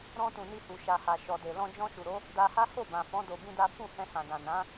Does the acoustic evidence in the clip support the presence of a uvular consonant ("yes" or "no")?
no